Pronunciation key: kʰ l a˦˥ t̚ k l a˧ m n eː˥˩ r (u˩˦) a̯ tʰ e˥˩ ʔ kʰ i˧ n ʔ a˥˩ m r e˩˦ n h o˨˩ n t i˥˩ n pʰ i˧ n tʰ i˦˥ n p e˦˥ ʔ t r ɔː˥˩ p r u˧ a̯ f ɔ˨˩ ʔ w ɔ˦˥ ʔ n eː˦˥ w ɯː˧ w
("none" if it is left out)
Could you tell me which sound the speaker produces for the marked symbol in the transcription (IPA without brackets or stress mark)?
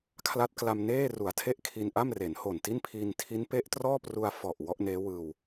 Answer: u˩˦